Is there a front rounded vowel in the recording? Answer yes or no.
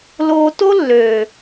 yes